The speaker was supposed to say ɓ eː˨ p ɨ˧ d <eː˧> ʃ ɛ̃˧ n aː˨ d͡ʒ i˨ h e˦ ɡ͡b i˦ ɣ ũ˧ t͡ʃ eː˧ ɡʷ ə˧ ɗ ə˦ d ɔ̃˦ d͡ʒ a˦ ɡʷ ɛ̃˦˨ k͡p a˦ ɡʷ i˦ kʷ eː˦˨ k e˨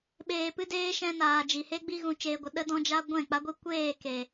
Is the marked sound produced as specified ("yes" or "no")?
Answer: yes